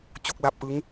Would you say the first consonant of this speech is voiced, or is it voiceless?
voiceless